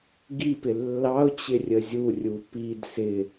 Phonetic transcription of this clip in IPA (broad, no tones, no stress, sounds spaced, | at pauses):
ɡ i p ɪ lː ɑ ʊ̯ t͡ɕ ɪ rʲ ə zʲ u rʲ u p i d s ɪ